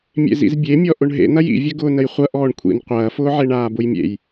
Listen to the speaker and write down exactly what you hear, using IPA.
mʲ ḛ z ḭ z bʲ e mʲ ɔ ʔ ʊ ɳ ɦ ḛ n̪ ɐ j ḭ vʲ ɐ ɡ ʊː n ə j χʷ ɐ ʔ ɔː ɳ kʷʰ ḭ n qʷ ɐː f ʊː ʕ e ɳ aː b ʊ j mʲ ḛ j

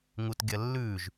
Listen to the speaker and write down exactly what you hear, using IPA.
ŋ u t ɡʲ ɐ lː ʉ ʒ

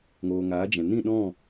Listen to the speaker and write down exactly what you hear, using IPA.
ŋ oː˨ ŋ aː˨˦ d͡ʒ ɛ̃˨ n ĩ˦˨ ɗ ɔ̃˦˨

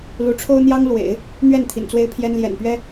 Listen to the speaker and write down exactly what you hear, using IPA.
l u˧˥ ʈ͡ʂʰ o˥ ʊ̯ n̪ j ɑ˥ ŋ l w ḛ˨˩˦ ɪ̯ | n̪ ɥ ɛ˥˩ n t̪ʰ ḭ˨˩ n t͡s w e˥ ɪ̯ pʰ j ɛ˥ n l j ɛ̰˨˩ n p ɥ ɛ˥

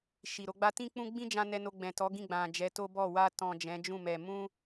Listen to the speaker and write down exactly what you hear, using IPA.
ʃ i˨ ɾ o˨˦ ɡ͡b a˦ t ĩ˦ k͡p ũ˦ ɡ͡b ĩ˦ d͡ʒ ã˧ n ɛ˧ n o˧ ɡ͡b ɛ̃˨ t ɔ˨˦ ɡ ĩ˦˨ ɡ͡b ã˨ d͡ʒ ɛ˨˦ t o˦ b ɔ˦˨ w a˧ t ɔ̃˨ d͡ʒ ɛ̃˨˦ d͡ʒ ũ˦˨ m ɛ˨ m ũ˧

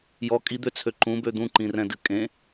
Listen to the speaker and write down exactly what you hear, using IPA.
j ɔ kʼ i d̪ ø t͡sʰ ø ǃ ũ b ø d̪ ũ ǃ ĩ r ɛ̃ d ɨ kʼ ẽ

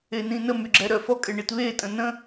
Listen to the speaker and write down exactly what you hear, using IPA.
e n ĩ n ə m y ɡ͡ǁ ɛ ɾ œ f ɔ kʼ e ɳ i t β e tʼ ə̃ n ə̃

